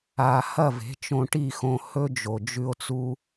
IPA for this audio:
a˨ h ɐ˦˨ v e̤˨˦ t͡ʃ õ˧ ʈ i˦˨ x õ˧ h ɵ˦ d͡ʒ o˨ d͡ʒ ʉ˧ o̯ t͡s u˦

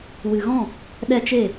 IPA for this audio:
w ɨ˨ ɣ ɔ̃˦˨ | ɗ ɛ˦ t͡ʃ e˦˨

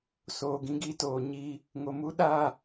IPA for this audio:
s oː˨ ɡ ĩ˧ ɡ iː˦ t oː˨ ɲ iː˧ | ŋ o˨ m u˧ ɗ aː˦˨

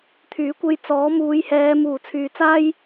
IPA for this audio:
t̪ʰ yː˨˥ kʷ e˧ j t͡s ɔː˨˥ m uː˨˧ j h ɛː˨˧ m uː˨˩ t͡sʰ yː˨ t͡s aː˥ j

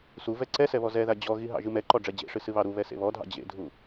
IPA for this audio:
s u v ɛ ǀ ɛ s ɛ β ɔ z ɛ ð a d͡ʑ ɔ ɣ i ɦ ɑ̰ ʒ ɨ m ɛ ǃ ɔ ɖ͡ʐ ɛ d͡ʑ ḛ ʂ ɨ s ɨ β ɑ ɾ u β ɛ s ḛ β ɔ dʱ ɑ̰ d͡ʑ ḛ dʱ u

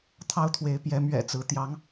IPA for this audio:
t̪ʰ ɑ˦ ʊ̯ t̪ʰ w e˨˦ ɪ̯ p j ɛ˨˦ m ɥ ɛ̰˨˩ t͡s ɹ̩˨˦ t̪ j ɑ˨˦ ŋ

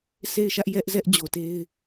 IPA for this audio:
s e˦˨ ɪ̯ ʃ ä˦ ʔ j ɛ˦ ʔ z ɛ˦ ʔ d͡ʑ o˨ t e˦ ɪ̯

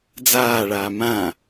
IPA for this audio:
d͡z aː ɭ aː m ã

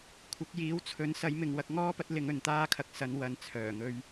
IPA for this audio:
kʷʰ ɐ˨˥ k̚ j iː˨˥ w t͡sʰ ɵ˨˥ n s ɐ˨˥ j m ɪ˨ ŋ w ɐ˧ k̚ ŋ ɔː˥ p ɐ˨˥ t̚ l ɪ˨˧ ŋ ɵ˨ n t̪ aː˥ kʰ ɐ˨ k̚ s ɐ˨˧ n w ɐ˨ n t͡sʰ œː˨˩ ŋ ɵ˧ ɥ

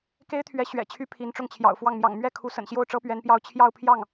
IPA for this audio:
k e˥ ɪ̯ t̪ʰ ɥ ɛ˧˥ ɕ ɥ ɛ̰˨˩ t͡ɕʰ y˥ pʰ i˧˥ n ʈ͡ʂ ʊ˥˩ ŋ t͡ɕʰ j ɑ̰˨˩ ʊ̯ f w ɑ˥˩ ŋ m j ɑ̰˨˩ ŋ m ɥ ɛ˥˩ kʰ u˧˥ s ə̰˨˩ n ɕ j o˥˩ ʊ̯ ʈ͡ʂ ɤ˥ p ɥ ɛ˧˥ n p j ɑ˥˧ ʊ̯ t͡ɕʰ j ɑ˥˧ ʊ̯ pʰ j ɑ˥˩ ŋ

